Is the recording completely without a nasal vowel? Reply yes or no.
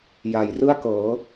yes